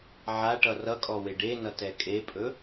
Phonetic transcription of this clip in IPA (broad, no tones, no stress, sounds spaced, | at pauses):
ʕ a ʈ ʌ r ʌ kʼ ɔ w e ɖ e n ʌ t ɛ kʼ e pʼ ɵ